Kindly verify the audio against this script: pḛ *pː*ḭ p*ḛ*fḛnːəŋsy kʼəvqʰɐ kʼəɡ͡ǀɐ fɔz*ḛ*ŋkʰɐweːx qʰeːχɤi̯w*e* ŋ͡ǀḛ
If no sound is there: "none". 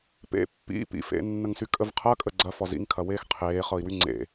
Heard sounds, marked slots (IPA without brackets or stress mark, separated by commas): pː, ḭ, ḭ, y